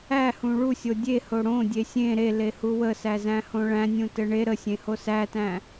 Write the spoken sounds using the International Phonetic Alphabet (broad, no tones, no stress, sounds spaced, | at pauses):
æ h ũ ɭ u sʲ o dʲ e h o ɽ õ dʲ e sʲ ẽ ɾ e l e h u w ə s æ z æ̃ h õ ɭ æ̃ nʲ ũ t ɘ ɳ e ɾ ə sʲ ẽ h o s æ t æ̃